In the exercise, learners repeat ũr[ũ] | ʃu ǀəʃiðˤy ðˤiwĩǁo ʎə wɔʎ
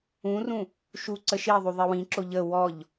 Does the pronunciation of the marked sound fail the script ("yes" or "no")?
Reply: no